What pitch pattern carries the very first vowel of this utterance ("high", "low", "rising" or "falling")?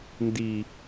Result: low